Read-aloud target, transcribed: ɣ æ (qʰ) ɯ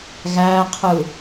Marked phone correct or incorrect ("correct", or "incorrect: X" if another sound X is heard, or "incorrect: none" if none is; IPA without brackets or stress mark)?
correct